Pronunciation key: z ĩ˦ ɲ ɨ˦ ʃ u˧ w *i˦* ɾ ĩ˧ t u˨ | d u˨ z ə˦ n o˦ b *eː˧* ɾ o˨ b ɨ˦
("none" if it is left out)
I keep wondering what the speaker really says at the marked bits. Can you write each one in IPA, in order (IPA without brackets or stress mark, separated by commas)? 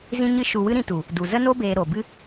ɨ˦, eː˧